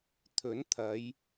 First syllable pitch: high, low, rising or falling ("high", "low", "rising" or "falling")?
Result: rising